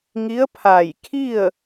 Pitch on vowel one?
rising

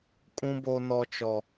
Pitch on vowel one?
high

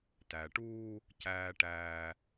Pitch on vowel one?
low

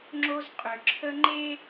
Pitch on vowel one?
high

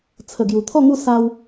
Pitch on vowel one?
low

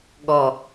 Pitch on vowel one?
low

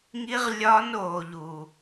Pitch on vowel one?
high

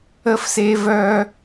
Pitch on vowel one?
high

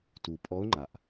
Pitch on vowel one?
low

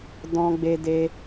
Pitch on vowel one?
high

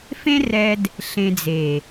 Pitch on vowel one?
high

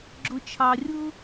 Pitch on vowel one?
high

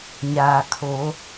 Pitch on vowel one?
low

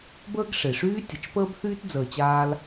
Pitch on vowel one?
high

